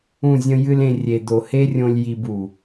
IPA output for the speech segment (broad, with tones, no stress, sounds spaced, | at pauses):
ũ˦˨ zʲ ə̃˦ j ɨ˦ l ẽ˧ rʲ e˨ d̪ o˨ h e˦ rʲ õ˧ lʲ j i˧ b u˨